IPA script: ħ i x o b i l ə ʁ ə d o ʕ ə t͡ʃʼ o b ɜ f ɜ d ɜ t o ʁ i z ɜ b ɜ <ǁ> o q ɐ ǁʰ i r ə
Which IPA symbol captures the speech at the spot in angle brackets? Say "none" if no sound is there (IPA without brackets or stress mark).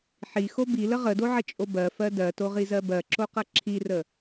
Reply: ǁ